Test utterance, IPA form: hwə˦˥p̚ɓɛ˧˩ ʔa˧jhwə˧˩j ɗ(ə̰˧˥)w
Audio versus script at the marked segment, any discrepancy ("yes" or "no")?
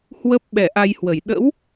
no